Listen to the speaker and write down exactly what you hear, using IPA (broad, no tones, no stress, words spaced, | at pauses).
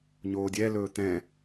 ɲoːdʲɛlɵː t̪ɛ̃